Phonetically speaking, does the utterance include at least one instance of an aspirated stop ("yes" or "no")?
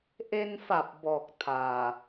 yes